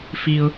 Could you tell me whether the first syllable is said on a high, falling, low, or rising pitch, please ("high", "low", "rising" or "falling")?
low